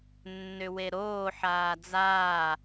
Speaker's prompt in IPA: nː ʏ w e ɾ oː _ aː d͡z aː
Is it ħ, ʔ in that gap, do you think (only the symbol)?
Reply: ħ